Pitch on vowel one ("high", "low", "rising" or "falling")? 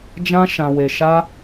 high